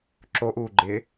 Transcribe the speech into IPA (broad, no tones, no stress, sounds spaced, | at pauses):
ǁ o ʔ uː ɡ͡ǃ ɪː